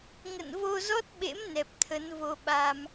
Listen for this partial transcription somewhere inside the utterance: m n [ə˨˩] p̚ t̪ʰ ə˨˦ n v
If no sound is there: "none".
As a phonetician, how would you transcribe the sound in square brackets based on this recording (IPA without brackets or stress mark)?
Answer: ɛ˨˩